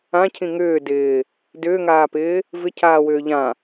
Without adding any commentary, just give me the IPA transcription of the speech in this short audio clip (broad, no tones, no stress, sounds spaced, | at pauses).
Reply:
ã cʰ ĩ ŋ ʏː d ɪː | d ʏː ŋ aː p ɪː | v ɪ cʰ aː w ʏː ʎ ã